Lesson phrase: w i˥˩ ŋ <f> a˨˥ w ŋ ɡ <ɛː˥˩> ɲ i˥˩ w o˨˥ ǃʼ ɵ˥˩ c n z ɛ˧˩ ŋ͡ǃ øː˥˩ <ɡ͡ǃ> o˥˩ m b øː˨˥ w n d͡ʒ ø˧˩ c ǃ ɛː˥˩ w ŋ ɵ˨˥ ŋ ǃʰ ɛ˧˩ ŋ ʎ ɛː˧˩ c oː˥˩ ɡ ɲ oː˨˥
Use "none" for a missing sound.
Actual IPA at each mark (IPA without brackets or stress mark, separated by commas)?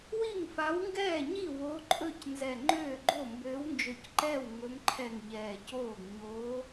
f, ɛː˥˩, ɡ͡ǃ